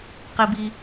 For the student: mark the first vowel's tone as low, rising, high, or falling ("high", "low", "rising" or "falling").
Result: low